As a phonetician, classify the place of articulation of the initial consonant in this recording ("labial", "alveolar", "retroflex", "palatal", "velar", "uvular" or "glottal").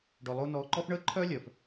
retroflex